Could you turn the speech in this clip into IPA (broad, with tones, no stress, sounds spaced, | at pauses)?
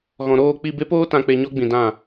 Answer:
ɣ ɔ̃˨ ɾ oː˦˨ k͡p i˦˨ b e˦ p oː˦ t ã˧ k͡p e˧ ɲ ɔ˦ ɡ͡b ĩ˨ d ã˦˨